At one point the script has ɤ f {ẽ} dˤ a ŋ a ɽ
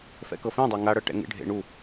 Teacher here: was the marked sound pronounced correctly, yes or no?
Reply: yes